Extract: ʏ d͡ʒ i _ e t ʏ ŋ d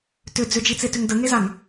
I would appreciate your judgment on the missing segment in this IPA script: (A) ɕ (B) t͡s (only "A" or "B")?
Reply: B